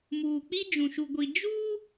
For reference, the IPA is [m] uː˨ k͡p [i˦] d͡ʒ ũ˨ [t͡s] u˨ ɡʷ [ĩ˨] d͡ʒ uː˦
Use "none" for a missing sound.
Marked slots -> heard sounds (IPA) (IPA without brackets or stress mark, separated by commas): m, i˦, ʃ, i˨